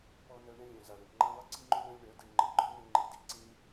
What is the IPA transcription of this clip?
pɔ˧nœ˧ ɳə̃˦lʲœ̃˨za˨ɽœ̃˨ʈ ŋ͡ǃã˧lˠə˧ǀi˧ŋ͡ǃø˧ ɽœ̃˦lʲɳœ˨˦de˧ɳ ŋ͡ǃə˨ɡ͡ǃɔ˦nə̃˧ ŋ͡ǃi˨di˧ ǀĩ˦

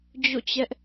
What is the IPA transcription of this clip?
d͡ʑo̰˦˨t͡ɕɛ˦ʔ

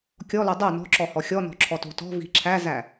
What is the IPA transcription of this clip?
kʲɔlo dˤœ nɔ̤ǁɔhɔ xʲɔnɔ̤ǁʰɔto̤ tɔ̤vi̤ ǁʰæzæ

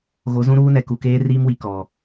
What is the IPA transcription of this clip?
ɣo˨˦zũ˦ɾuː˦nɛ˨ ku˨keː˦riː˦mwi˨ kɔ˨

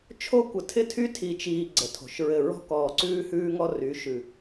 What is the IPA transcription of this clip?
t͡ʃʰo˦kʷə˨˦tʰɪ˦tʰy˦ tʰi˨t͡ʃiː˨ ɡ͡ǀə˨tʰo̤˨ʃɹɘ˦˨ ɹɔ̤˦kɔː˨ǀʉː˦ hʉː˦ŋɔ˦ry˨˦ʃʉ˨

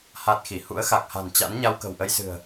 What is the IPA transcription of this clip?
ha˦˥t̚xi˧˩ hṵ˧˥ə̯xa˨˩k̚ha̤˨˩nt͡ɕa̰˧˥n ɲa˧wkə̤˨˩wʔə˧jsɨ̤˨˩ə̯

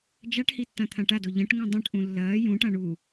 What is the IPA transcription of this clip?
d͡ʒaʈhi tːãt̪ʰãʈado ʎɐ̃ʈŋũ dˤũʈʔũ lːɐː jũʈã ɳu

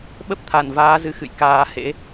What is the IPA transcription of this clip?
ɓə˦˥p̚t̪ʰa˧˩n vaː˨˦zɨ˧xɨ̰˧˨j kaː˧hḛ˧˥

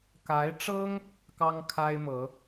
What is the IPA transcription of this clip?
ka˧˥ɪ̯ʈ͡ʂɤ˥ŋ | kɑ˥ŋkʰa˥ɪ̯mɤ˧˥

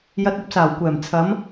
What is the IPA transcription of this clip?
jɐ˧t̚ɐ˧p̚saː˨˩wkʷɛː˨˩m t͡sʰɐ˨˧m

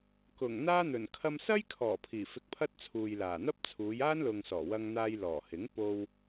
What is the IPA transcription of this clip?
kʊ˨˩ŋ n̪aː˥n̪ɵ˨˩n kʰɐ˧msɐ˥jkʰɔː˨˩ pʰiː˨˩fɪ˧k̚pʰɐ˥t̚t͡sʰuː˨j laː˨˩ n̪ɐ˥p̚t͡sʰuː˨˧jaː˥nlʊ˨ŋ sɔː˨˩wɐ˧ŋn̪aː˧j lɔː˨˩hɪ˨˥ŋpo˧w

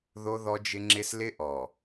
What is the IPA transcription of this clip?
ðo˦ðɔ˦d͡ʒɪ˦ ŋ͡ǁɪ˦s lɪ˦ʔɔ˨

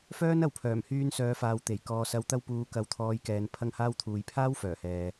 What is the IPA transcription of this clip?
fœː˥nɐ˨w pʰœː˨˩mhyː˧nsœː˨˧faː˨w t̪e˨˩j kɔː˨sɐ˨˧wt̪ɐ˧w puː˨ kɐ˨˥wt̪ʰɔː˨˧jkɛː˨n pʰɐ˧ŋhaː˧wt̪ʰuː˨j pʰaː˥wfœː˨˩hɛː˨

